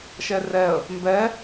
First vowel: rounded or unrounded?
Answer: unrounded